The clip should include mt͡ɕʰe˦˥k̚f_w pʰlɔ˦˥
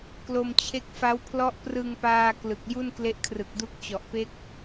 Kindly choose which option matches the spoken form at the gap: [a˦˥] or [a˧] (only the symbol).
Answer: a˦˥